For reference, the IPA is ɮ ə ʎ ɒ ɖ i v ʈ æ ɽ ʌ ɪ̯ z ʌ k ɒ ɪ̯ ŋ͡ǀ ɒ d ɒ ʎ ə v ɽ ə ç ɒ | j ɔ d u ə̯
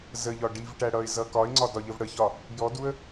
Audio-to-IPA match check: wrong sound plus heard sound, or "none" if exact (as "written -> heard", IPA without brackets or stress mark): ɮ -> z